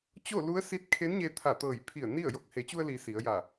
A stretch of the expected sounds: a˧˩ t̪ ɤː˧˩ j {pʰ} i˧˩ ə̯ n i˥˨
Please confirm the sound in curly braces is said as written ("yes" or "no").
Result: yes